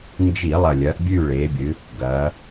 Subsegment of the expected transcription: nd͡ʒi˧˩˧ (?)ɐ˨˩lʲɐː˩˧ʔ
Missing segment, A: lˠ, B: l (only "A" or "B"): A